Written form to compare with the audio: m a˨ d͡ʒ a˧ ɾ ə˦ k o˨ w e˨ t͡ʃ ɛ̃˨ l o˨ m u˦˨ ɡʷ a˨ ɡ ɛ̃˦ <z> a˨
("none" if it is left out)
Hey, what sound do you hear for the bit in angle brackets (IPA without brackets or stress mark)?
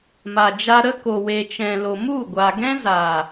z